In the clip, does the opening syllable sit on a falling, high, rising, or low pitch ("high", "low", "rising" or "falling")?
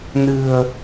low